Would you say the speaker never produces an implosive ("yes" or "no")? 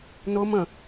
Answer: yes